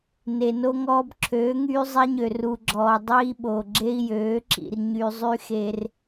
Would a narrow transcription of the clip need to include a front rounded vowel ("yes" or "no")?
yes